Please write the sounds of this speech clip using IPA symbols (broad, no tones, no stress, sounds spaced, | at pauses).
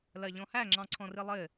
l ɜ ʎ ɔ̃ h æ ŋ͡ǁ ɑ̃ ǀʰ ɔ̃ r i lˠ ɘ